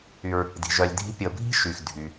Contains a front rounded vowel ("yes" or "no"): yes